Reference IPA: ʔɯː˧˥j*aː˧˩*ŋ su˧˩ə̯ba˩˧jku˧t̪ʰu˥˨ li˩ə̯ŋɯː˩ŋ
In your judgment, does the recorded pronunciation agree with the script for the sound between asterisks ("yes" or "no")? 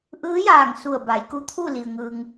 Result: yes